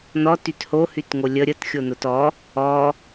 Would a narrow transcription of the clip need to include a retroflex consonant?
no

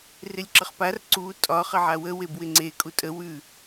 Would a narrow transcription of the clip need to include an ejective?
yes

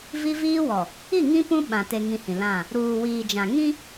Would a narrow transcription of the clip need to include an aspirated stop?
no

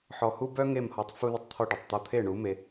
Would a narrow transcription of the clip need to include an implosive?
no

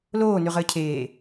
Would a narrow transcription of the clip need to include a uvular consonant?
yes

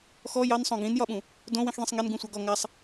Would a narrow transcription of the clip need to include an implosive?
yes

